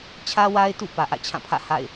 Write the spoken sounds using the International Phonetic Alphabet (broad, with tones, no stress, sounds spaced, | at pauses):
t͡ɕʰ ä˦ w a˦ ɪ̯ t ṵ˦˨ p ä˨ ʔ ä̰˦˨ t͡ɕʰ ã˦˨ pʰ ä̰˦˨ h a̰˦˨ ɪ̯